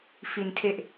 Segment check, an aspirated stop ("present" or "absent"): present